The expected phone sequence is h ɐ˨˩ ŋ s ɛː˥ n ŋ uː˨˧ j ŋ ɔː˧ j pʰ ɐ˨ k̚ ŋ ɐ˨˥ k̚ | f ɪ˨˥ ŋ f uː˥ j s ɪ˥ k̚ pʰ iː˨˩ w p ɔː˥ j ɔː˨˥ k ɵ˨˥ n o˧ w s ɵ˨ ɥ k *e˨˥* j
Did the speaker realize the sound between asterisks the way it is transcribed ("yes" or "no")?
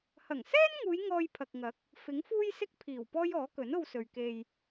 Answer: no